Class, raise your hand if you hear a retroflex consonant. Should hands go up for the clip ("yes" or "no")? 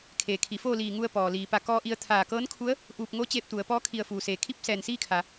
no